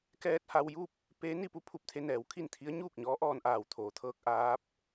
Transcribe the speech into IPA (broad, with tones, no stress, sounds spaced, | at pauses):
k ɛː˧ t̚ h a˧ w j u˥˨ p̚ | p e˧˥ n i˧ p u˧ pʰ u˧˩ p̚ t̪ʰ e˧ n ɛː˩˧ w kʰ i˥˨ n t̪ʰ i˧˥ ə̯ ɲ uː˥˨ k̚ ɲ ɔː˧˥ ʔ ɔː˧ n ʔ aː˧˩ w t̪ʰ oː˩ t̪ʰ ɤː˧ k̚ ʔ aː˧˥ p̚